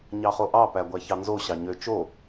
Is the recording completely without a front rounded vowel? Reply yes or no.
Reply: no